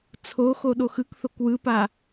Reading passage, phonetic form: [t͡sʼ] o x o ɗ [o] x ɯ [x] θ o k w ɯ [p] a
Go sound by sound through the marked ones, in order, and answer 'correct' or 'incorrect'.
incorrect: t͡sʰ, correct, incorrect: k, correct

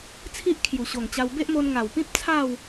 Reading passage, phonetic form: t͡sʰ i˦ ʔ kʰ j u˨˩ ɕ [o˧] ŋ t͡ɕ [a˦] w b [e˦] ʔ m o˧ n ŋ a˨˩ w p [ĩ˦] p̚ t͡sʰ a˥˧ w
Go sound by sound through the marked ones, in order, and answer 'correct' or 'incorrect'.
incorrect: o˨˩, incorrect: a˧, correct, correct

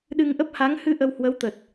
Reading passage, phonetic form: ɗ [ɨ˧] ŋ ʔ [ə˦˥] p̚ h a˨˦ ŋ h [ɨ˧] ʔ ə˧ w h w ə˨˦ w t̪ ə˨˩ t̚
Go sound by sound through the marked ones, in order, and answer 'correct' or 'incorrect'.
correct, correct, correct

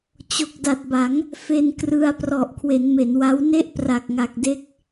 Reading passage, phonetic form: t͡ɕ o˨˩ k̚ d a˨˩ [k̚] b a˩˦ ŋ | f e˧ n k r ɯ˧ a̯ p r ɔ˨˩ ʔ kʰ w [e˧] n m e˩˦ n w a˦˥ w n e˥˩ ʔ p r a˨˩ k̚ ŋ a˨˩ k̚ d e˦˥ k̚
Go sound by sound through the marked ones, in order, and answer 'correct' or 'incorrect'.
incorrect: t̚, incorrect: e˩˦

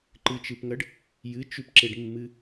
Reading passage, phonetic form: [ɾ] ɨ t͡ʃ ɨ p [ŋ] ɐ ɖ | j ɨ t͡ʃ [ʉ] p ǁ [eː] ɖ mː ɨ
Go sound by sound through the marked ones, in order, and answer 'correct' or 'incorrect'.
incorrect: ǃ, correct, correct, incorrect: e

